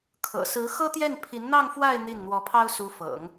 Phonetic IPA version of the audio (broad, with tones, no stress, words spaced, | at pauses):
kʰɤ̰˨˩sɹ̩˧˥xɤ˥t̪jɛ˥˩n pʰi˧˥nn̪ɑ˥˧ŋfwa˥˧ɪ̯ n̪i˥˩n n̪wɔ˧˥pʰɑ˥ʊ̯su˧˥ fɤ̰˨˩˦ŋ